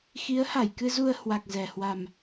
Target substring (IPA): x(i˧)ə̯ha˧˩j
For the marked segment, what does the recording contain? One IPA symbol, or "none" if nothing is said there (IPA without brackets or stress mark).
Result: i˨˦